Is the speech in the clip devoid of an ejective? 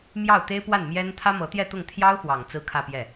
yes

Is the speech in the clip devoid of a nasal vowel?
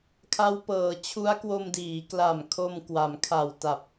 yes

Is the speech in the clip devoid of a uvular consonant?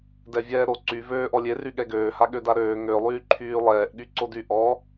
yes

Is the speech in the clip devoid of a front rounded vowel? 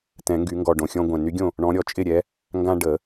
no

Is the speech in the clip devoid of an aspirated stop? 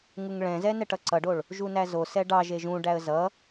yes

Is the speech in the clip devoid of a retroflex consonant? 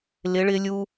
no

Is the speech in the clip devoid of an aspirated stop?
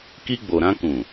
yes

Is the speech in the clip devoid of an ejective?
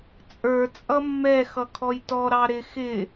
no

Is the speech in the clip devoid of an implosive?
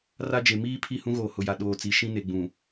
no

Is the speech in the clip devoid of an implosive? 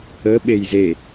no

